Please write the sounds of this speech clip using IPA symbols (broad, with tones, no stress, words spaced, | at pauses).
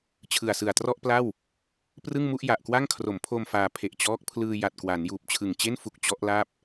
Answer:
t͡ɕʰɯ˨˩a̯sɯ˨˩a̯trɔ˥˩ʔpla˥˩w | prɯ˥˩ŋmu˥˩ʔja˨˩ʔkwa˥˩ŋ kʰro˩˦mpʰo˧m faː˧ pʰe˨˩ʔ t͡ɕɔː˦˥k̚ pʰlɯː˧ja˨˩t̚kwa˩˦n juː˨˩p̚t͡ɕʰɯ˨˩ŋt͡ɕe˥˩n fu˦˥k̚ t͡ɕɔ˦˥ʔla˥˩p̚